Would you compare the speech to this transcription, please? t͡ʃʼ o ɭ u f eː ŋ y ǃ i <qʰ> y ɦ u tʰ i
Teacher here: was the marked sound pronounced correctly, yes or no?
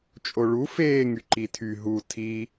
no